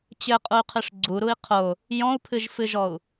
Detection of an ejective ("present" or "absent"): present